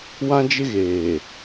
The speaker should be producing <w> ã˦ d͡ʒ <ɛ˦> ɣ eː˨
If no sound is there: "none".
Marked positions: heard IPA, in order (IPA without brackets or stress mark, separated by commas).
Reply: w, ɪ˦